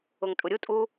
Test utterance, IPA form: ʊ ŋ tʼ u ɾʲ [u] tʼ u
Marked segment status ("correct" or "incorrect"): correct